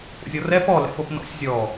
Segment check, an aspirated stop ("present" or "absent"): absent